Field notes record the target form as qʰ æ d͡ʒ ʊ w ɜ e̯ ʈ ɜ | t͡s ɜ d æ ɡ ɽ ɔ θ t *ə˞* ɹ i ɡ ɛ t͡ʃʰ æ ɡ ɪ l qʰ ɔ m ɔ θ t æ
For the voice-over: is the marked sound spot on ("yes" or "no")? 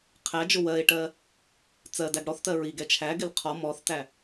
no